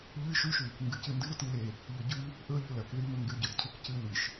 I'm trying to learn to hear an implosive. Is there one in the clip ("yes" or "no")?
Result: no